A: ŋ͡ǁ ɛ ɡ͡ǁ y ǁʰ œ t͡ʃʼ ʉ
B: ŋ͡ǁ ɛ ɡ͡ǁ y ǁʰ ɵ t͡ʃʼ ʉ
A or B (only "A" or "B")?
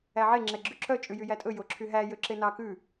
A